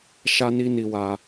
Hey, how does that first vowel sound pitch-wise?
high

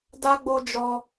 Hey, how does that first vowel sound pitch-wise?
high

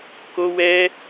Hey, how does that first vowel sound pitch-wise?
high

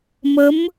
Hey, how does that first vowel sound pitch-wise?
rising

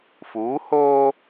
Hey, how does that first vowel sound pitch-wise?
rising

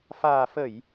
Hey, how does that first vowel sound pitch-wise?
low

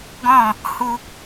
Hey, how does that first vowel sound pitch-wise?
falling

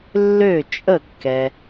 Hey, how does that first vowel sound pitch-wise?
falling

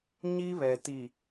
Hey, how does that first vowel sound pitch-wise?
high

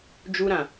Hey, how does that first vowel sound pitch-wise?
high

